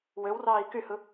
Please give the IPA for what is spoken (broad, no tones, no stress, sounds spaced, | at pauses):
w ø w r ɑː i̯ k y h ɯ